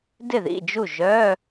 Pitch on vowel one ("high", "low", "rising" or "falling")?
falling